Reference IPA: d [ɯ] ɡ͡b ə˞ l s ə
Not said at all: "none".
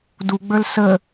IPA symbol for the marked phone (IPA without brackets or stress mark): u